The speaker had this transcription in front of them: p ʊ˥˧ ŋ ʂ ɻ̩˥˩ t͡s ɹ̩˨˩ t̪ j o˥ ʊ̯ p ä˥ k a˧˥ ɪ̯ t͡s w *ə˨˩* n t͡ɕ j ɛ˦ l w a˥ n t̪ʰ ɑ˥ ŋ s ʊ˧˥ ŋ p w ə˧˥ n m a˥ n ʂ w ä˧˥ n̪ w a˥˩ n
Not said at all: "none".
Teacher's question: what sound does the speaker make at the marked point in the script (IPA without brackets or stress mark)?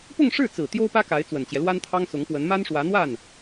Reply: ə˨˩